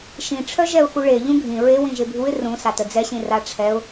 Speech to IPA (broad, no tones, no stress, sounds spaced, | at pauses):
ʃ ĩ ʈ͡ʂʰ œ ʒ ɛ ʊ̯ x u ɭ e ʎ ũ ɡʱ ĩ ɹ e w ĩ ʒ e bʱ u ɪ̯ r ũ s a t ə d͡z ɛ ɕ ĩ r a ʈ͡ʂʰ ɛ ʊ̯